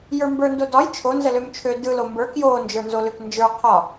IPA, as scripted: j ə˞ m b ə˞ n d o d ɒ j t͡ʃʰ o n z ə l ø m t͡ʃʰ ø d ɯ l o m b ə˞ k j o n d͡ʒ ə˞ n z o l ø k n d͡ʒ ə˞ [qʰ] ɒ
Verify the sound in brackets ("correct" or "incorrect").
correct